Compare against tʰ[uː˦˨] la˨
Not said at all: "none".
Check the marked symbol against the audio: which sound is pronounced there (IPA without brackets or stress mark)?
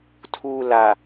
uː˨